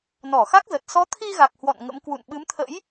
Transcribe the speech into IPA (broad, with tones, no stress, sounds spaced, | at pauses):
n ɔ˧˩ x a˦˥ k̚ z ə˨˩ t̚ s ɔ˨˦ t̪ʰ i˧ ɣ a˨˩ k̚ h w ɔ̰˧˨ n ŋ ə̰˧˥ m k w ṵ˧˨ n ɓ ɨ˨˦ m t̪ʰ ə̰˧˥ j